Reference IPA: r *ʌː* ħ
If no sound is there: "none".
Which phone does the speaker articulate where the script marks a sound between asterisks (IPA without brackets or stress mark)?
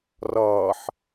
ʌː